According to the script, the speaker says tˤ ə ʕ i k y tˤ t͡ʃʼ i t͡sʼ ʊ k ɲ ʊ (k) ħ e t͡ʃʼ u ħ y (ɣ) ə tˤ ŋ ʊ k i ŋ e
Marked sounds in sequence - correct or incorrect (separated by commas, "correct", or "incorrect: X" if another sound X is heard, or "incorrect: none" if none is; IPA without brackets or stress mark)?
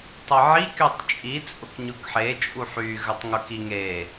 correct, correct